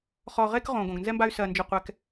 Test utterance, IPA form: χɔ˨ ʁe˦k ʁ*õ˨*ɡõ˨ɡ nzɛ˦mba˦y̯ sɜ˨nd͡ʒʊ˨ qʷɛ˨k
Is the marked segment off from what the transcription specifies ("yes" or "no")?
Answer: no